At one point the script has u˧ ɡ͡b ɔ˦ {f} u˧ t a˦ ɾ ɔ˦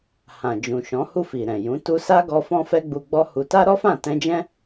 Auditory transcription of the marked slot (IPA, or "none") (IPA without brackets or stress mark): h